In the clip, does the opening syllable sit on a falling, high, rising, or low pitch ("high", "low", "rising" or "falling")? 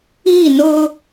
falling